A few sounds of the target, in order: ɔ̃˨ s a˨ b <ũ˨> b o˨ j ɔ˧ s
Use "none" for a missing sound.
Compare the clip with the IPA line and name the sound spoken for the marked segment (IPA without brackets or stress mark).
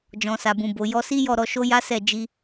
ũ˨